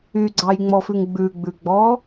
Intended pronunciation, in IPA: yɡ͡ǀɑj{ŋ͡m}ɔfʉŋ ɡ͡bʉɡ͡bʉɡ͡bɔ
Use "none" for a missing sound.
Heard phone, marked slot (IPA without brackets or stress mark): ŋ͡m